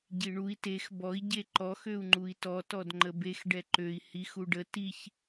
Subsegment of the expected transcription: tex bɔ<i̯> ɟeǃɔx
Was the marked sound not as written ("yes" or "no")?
no